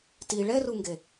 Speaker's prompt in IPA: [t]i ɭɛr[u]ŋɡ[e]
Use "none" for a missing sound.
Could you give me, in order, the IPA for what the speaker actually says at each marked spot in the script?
t, u, e

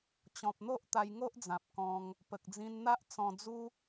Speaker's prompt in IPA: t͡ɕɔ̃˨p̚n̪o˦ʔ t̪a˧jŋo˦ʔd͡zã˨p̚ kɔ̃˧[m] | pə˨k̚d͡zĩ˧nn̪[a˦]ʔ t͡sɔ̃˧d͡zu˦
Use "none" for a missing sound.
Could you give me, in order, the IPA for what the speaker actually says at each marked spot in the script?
ŋ, a˦

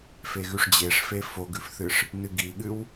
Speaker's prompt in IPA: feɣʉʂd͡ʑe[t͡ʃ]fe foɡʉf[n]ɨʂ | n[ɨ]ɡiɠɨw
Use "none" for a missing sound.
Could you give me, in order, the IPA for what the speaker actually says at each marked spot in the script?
ʂ, θ, ɨ

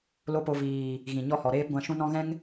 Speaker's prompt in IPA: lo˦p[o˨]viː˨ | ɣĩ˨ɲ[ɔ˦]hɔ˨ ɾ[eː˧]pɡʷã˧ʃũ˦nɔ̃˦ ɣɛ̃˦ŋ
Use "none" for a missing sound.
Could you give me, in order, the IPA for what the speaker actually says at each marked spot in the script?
o˧, ɔ˦, eː˦

